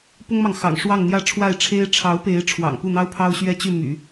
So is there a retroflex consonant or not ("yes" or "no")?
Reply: yes